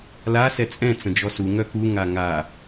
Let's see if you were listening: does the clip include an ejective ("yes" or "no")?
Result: yes